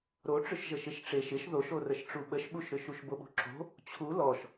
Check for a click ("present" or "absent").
present